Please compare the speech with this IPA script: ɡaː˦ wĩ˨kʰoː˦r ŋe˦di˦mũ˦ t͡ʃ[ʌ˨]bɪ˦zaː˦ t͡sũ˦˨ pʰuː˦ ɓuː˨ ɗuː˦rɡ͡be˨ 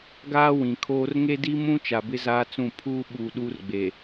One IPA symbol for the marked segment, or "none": a˨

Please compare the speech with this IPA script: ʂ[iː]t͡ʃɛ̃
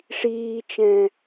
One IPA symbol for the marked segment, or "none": iː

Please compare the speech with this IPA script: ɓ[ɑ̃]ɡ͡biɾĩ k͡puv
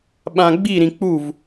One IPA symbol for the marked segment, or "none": ã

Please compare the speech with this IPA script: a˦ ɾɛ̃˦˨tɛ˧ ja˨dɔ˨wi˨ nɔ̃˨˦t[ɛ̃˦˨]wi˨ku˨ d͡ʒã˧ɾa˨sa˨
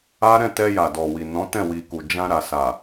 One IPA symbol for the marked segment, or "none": ɛ̃˦˨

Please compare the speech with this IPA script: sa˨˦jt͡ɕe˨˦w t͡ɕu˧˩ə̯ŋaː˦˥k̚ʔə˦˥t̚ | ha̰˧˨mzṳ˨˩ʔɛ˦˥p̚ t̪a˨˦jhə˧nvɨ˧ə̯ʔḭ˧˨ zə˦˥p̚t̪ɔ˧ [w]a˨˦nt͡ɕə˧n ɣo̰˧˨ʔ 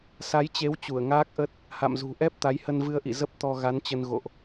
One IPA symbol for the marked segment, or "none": ɣ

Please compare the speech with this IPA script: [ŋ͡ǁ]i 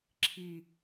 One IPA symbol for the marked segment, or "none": ǁʰ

